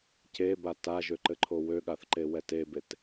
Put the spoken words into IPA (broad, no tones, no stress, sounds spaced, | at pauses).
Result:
c e b a t a ʒ ø ǃ ɘ ǃʰ o w ø ɠ a θ ǃ e w ɛ t e b e t